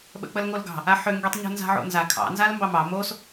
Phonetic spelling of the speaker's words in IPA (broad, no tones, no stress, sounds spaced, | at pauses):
ɓ ə̰ k͡p ə l ŋ o l ɡ ɑ̤ | a ħ ø ŋ ɡ i tˤ ɲ ṳ n z a̤ ʕ o̰ n z a kʰ ɑ̰ n z a l m b ɑ m ɑ m o s